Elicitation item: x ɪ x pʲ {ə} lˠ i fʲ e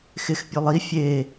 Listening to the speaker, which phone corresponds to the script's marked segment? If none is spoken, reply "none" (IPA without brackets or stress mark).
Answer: ø